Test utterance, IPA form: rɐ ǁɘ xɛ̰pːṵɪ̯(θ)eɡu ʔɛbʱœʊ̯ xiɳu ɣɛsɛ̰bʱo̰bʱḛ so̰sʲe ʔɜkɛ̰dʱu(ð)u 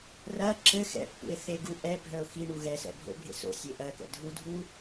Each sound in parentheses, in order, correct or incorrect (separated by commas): correct, incorrect